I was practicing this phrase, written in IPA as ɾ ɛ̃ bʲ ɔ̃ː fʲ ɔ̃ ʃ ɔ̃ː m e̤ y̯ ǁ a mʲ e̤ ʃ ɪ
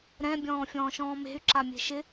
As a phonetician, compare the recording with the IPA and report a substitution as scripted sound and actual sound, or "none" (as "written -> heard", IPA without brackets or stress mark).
ɔ̃ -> ɔ̃ː